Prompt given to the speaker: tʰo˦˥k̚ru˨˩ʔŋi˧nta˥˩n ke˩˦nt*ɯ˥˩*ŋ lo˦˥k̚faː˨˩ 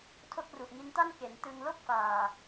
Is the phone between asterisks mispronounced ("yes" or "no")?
yes